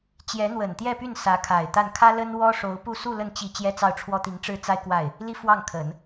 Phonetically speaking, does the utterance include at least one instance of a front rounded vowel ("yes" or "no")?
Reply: yes